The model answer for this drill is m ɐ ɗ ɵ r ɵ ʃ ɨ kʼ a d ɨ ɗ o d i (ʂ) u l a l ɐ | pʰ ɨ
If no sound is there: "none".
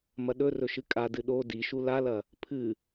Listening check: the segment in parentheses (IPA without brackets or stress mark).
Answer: ʃ